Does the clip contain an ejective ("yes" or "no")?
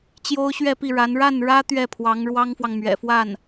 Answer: no